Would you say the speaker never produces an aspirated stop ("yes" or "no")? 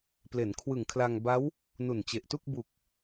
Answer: no